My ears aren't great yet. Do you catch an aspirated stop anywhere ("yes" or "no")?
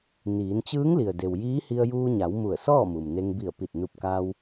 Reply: no